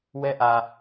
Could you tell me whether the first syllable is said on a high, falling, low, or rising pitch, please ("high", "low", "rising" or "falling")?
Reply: high